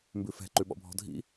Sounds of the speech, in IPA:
m b ʉ f ɛ̤ ǃ ʉ ɓ ɔ̰ bʱ ɔ̤ dʱ ḭ

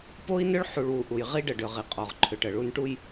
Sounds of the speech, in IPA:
p o˦ i̯ n ʏ˦ ɭ ħ u˨ ɭ w u˨ ʔ u˨ j ʁ i˦ ɖ ə˨ ɖ ʏ˨ ʁ i˨ qʼ ɔ˨ ʁ ǃʰ ʏ˨ ʈ ə˨ ɭ u˦ n ʈ u˦ j

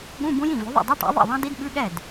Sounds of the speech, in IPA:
ɠ ũ˧˥˧ b ũ˦˥ j ĩ˥˩ v ʉ˩˥ ðˤ ḭ˥˩ dˤ ʉ˧˥˧ ʈ ɛ̰˩˥ ðˤ ḭ˥˩ ðˤ ɑ̃˦˥ d i˦˥ d ɓ ʉ˧˥˧ ɠ ɛ˥˩ d

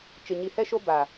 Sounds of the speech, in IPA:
t͡ʃ ɪ˨ ɲ i˨ h ɛ˦ ʃ o˦ b a˨

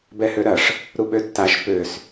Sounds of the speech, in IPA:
b ɛ h ø ɾ ɐ ʂ | ɾ u ɓ ø tː a ʃ p ø s

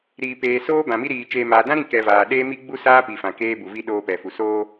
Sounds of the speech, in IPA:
ɾ iː˨ p eː˨ s oː˦ b ã˨ m i˦ ɾ iː˨ t͡ʃ eː˨ m aː˨ d ã˦ ɾ ĩ˦˨ k ɛ˨ v aː˨ ɗ eː˦ m i˦ ɡ͡b u˦ s aː˦ p i˨ f ã˨ k eː˦ b u˨ v i˦ ɗ oː˦ p ɛ˨ f u˨ s oː˦

